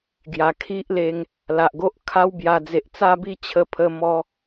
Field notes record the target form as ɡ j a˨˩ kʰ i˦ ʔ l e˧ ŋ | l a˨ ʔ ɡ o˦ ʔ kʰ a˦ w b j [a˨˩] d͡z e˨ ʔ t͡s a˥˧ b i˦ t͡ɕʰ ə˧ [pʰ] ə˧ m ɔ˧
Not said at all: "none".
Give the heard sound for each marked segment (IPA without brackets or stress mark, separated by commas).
a˨˩, pʰ